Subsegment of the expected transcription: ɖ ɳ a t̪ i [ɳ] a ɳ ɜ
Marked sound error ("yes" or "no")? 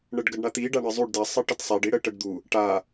yes